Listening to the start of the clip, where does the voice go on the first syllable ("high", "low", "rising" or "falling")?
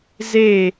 falling